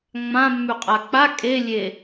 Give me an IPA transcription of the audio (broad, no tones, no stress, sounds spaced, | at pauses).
ŋ͡m ã mː ʉ qʼ a k͡p a kʼ e lʲ e